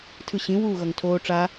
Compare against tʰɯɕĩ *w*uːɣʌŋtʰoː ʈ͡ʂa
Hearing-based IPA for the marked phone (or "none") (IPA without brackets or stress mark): w